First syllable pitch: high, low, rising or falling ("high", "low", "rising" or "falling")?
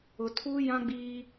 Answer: low